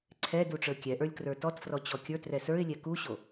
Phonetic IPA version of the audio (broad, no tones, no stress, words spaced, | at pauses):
ǀʰɛdu ʈ͡ʂə˞kʲɛʔə˞lʲ krə˞tɔtfrɔ t͡ɕɔkʲə˞trɛ sə˞ɪ̯lʲɛ kuɕo